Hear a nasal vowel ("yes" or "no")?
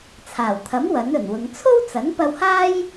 no